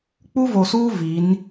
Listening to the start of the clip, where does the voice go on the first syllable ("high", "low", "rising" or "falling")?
high